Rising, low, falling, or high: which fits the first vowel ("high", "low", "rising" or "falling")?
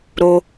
high